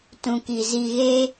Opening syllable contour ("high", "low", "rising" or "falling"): low